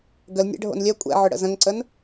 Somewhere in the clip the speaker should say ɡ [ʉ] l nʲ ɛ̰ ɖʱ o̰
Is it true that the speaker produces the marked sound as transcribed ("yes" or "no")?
no